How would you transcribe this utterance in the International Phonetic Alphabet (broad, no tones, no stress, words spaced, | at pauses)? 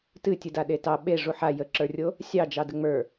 tɨtʲɨda ɗetɑ ɓe ʐuħa jəǁə˞rʲo | sʲɑd͡ʒɑ dəŋ͡mə˞